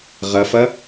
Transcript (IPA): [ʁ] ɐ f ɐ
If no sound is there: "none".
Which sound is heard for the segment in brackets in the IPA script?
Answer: ʁ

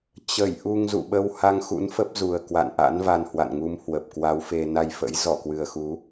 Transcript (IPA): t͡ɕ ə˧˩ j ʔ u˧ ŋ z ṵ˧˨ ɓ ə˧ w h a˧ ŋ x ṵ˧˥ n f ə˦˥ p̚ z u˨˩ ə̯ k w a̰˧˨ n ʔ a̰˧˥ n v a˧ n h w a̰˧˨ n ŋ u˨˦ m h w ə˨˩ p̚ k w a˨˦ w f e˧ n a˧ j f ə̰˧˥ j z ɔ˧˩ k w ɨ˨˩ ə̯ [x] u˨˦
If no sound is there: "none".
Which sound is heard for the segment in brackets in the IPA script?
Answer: x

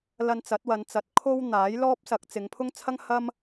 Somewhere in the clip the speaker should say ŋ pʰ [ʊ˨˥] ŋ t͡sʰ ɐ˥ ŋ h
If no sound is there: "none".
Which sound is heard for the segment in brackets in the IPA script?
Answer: ʊ˥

